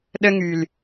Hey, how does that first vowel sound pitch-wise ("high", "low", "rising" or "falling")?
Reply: high